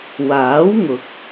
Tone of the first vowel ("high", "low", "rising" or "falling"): rising